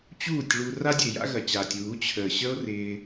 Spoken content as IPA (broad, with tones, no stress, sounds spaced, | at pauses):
t͡ɕ uː˦˨ tʲ ɭ u˧ r a˦ dʲ ə̰˨ e̯ j a̰˦ ɣ ɐ˨ t͡ɕ aː˨ tʲ w u˨˦ t͡ɕʰ əː˨ ɕ ə˦ o̯ r ɪː˧